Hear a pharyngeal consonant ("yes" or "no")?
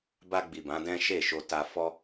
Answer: no